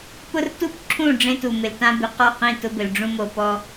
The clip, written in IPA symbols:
p ʊ˦ r t u˦ p ǁʰ ũ˦˨ ɖ͡ʐ ẽ˦ t u˨ m ɪ˨ l t ã˦ b ɪ˨ q ɔ˦˨ q ĩ˦˨ t ʊ˦ b ɪ˨ l ɖ͡ʐ ũ˦ m o˨ p ɔ˦

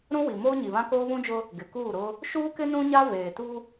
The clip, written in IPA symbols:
ɾ ũ˦ w i˨ m oː˦ ɲ i˨ β ã˦ k oː˦ β ũ˦ d͡ʒ ʊ˦ | ɡ ɪ˨ k uː˦˨ ɾ ʊ˦ | ʃ uː˦ k ɪ˦ n ũ˦ ɲ a˦ v eː˨ t u˦

